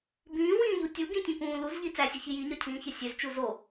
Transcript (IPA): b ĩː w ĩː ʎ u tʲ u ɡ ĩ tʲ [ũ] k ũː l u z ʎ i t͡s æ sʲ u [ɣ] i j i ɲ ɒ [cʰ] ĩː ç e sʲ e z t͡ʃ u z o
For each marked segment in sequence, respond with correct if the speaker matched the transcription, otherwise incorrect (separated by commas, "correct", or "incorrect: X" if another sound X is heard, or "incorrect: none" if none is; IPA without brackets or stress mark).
correct, incorrect: ç, correct